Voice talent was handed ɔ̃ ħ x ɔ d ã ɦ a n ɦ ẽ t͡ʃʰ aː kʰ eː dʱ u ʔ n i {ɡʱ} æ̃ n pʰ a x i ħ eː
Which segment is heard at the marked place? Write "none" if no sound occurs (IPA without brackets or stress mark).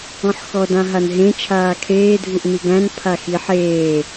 ɡ